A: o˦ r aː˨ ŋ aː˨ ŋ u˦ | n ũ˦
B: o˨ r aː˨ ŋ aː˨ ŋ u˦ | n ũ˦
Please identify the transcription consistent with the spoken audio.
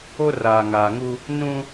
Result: A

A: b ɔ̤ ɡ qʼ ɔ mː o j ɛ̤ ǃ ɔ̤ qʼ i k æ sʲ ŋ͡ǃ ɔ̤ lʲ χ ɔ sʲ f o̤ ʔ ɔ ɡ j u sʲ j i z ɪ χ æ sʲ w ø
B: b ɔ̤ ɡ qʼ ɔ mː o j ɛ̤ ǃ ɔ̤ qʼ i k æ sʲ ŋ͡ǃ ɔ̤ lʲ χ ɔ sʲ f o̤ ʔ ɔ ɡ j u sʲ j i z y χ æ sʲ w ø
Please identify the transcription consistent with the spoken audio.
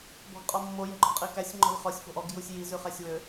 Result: B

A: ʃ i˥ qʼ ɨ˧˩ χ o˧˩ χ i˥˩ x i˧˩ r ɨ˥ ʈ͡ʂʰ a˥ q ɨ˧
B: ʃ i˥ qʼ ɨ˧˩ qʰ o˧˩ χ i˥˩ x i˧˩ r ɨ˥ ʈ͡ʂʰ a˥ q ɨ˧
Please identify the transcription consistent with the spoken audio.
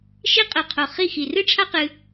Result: B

